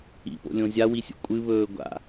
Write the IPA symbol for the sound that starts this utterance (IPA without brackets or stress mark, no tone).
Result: ḭ